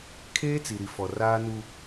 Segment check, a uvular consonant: absent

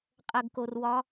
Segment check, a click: absent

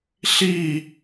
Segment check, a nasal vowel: absent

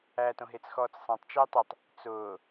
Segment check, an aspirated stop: absent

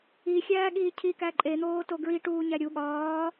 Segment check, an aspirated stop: present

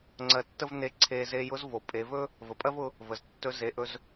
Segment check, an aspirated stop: present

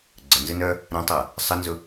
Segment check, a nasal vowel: present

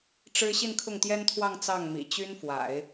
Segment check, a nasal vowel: absent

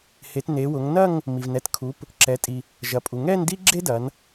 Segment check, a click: present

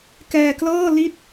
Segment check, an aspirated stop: absent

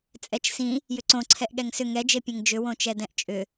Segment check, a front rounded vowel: present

